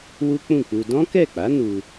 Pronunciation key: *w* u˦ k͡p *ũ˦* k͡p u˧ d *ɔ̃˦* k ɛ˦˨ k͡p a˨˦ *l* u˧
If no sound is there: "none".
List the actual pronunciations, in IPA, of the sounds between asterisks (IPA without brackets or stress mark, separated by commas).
w, ũ˦˨, ɔ̃˦, n